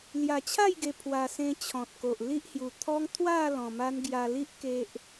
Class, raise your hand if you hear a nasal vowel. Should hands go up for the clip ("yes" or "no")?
yes